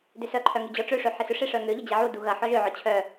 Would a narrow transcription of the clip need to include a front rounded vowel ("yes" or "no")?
yes